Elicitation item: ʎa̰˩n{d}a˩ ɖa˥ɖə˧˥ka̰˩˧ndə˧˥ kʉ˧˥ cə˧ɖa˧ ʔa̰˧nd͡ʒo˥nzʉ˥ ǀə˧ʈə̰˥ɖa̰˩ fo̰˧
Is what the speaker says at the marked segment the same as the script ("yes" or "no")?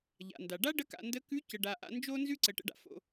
yes